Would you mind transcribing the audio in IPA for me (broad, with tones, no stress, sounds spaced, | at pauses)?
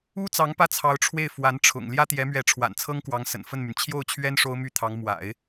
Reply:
u˥ t͡s ɑ˧˥ ŋ p ä˥˩ t͡sʰ ɑ˧˥ ʊ̯ ʈ͡ʂʰ w e˥˩ ɪ̯ f w a˧˥ n ʈ͡ʂʰ ʊ̰˨˩ ŋ l j ä˥ t̪ j ɛ˧˥ m ɥ ɛ˧˥ ʈ͡ʂʰ w a̰˨˩ n t͡sʰ ɤ˥ ŋ k w ɑ˧˥ ŋ s ə̰˨˩ n f ə˥˩ n m y˩ n t͡ɕʰ j o˥˩ ʊ̯ t͡ɕʰ ɥ ɛ˥ n ʂ o˥ ʊ̯ m y˥˩ t̪ʰ ɑ˧˥ ŋ m w a̰˨˩˦ ɪ̯